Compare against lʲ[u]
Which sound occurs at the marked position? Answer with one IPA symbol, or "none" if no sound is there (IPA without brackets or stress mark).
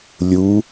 u